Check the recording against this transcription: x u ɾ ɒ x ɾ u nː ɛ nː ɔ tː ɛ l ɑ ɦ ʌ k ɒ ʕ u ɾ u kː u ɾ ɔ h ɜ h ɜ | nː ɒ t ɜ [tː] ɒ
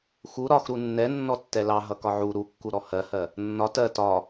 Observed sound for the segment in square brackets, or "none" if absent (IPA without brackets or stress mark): t